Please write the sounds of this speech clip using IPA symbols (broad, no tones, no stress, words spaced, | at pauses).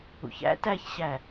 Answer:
ṵçæ̰ tæçɕæ